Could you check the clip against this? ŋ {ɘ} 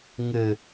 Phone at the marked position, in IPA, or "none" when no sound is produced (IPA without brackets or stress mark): ɘ